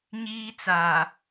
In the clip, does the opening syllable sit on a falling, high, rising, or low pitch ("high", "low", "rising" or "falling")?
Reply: high